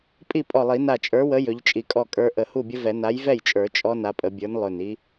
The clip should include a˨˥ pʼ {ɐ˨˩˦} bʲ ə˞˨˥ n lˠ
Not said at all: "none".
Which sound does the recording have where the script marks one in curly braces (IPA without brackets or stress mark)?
ə˨˩˦